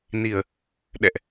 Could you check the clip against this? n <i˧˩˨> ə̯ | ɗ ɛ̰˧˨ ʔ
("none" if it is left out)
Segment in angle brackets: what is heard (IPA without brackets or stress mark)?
i˧˩˨